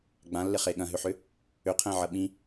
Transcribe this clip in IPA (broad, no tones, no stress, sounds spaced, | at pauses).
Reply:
ɡ͡b ã lː ɪ χ e ɠ ɐ̃ ɦ ʏ ħ ʏ | ʏ qʰ ɛ̃ ʕ ɐ ɓ ĩ